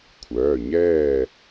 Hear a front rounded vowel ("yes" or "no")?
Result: yes